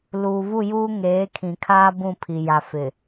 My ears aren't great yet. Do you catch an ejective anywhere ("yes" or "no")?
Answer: no